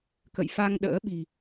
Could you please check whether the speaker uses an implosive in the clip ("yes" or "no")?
yes